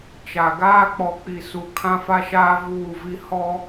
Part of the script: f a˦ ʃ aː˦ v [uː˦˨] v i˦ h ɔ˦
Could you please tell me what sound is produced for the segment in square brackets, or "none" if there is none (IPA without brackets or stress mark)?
uː˦˨